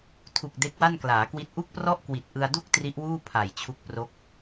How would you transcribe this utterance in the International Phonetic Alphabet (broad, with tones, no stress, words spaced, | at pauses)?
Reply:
tʰu˨˩k̚ de˦˥k̚wa˥˩nklaː˩˦kwi˦˥t̚ ʔu˥˩k̚prɔ˥˩ʔ kwi˨˩t̚ʔɯ˧a̯du˥˩k̚ tri˦˥ʔwuː˥˩ pʰa˨˩jt͡ɕʰu˦˥k̚pro˦˥k̚